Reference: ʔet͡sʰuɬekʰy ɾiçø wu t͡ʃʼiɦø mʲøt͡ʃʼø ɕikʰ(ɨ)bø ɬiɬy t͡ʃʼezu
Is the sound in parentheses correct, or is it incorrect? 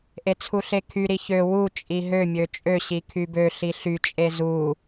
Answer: incorrect